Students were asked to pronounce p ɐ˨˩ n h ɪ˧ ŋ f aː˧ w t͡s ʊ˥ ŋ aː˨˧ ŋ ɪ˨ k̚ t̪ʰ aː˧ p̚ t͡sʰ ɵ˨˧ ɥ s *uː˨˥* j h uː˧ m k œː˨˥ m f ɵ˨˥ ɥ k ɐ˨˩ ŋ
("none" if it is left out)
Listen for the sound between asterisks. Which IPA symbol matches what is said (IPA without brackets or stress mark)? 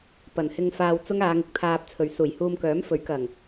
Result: uː˨˩